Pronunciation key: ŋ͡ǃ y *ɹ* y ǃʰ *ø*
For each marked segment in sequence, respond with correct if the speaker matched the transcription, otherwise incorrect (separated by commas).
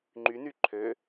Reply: incorrect, correct